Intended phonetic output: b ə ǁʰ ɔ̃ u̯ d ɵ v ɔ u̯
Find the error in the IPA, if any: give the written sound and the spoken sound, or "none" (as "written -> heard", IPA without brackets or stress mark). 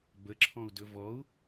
none